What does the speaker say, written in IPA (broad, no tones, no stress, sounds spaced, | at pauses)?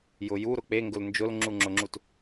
j ʊ j u ɾ ʊ k͡p e ŋ ɡ ʊ l n d͡ʒ ʊ l ŋ͡ǁ u ŋ͡ǁ ʊ ŋ͡ǁ u t